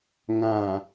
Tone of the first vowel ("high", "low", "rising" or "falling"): low